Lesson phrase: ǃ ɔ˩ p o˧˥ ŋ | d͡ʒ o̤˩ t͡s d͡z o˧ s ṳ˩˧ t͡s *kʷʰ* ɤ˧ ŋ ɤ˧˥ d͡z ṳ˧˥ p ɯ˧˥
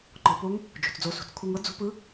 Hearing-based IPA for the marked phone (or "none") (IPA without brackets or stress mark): kʷʰ